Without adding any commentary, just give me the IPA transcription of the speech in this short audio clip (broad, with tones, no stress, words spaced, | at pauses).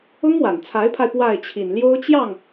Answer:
ʊ˥ŋwa˨˩nt͡sʰa˧˥ɪ̯pʰa˧ɪ̯ pwa˥˩ɪ̯t͡ɕʰi˨˩nljo˥ʊ̯ t͡ɕjɑ˥˩ŋ